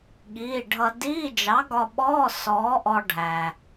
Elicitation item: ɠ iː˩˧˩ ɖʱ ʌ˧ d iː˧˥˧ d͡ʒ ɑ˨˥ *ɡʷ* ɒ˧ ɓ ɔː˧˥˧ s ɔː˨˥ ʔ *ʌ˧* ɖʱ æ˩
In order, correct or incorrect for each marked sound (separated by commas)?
incorrect, incorrect